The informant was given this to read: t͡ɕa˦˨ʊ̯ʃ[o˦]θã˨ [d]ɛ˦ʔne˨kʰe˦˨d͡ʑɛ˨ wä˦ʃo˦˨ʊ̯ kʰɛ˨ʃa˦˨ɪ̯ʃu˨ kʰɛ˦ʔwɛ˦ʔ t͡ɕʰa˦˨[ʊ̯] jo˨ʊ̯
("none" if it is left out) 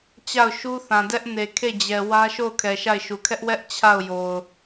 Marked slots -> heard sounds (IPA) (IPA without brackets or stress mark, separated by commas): u˦, d, ʊ̯